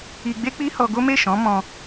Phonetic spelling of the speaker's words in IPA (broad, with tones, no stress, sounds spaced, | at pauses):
i˧ ɡ͡b e˦ k͡p i˦ h ɔ˧ ɡ o˦ m e˦˨ ʃ ɔ̃˨˦ m ɔ̃˧